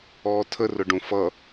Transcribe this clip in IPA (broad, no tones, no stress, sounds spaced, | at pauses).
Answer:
ɔː tʰ ə r ʊ ɖ ũ f ʌ